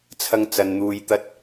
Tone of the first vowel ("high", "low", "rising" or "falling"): high